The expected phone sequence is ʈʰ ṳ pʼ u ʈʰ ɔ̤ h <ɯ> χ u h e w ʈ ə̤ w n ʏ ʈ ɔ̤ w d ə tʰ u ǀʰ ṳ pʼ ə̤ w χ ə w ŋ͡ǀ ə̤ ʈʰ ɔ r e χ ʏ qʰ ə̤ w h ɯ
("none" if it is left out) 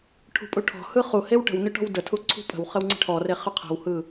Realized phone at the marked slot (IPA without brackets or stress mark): ɯ